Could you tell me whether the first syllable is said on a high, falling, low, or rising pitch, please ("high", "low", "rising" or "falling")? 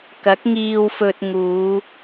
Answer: rising